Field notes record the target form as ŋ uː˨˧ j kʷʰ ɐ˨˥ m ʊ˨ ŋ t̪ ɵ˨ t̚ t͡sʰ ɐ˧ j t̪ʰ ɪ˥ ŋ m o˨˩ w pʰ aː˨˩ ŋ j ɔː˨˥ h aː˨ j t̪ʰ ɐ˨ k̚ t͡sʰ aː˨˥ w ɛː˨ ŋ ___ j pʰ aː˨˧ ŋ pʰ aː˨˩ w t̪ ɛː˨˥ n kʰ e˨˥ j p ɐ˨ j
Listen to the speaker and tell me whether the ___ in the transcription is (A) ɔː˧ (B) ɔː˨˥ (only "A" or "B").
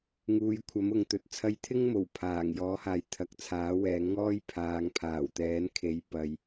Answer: A